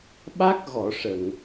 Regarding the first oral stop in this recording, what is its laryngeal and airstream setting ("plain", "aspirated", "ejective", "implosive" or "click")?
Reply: implosive